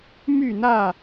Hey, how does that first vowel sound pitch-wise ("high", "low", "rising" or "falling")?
falling